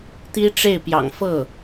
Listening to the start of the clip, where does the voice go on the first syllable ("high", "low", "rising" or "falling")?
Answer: high